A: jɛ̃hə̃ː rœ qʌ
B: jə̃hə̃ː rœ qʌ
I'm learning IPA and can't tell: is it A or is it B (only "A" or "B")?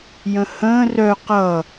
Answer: B